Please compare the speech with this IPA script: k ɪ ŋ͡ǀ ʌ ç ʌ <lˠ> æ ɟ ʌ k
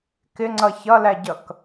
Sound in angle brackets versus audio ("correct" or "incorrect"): incorrect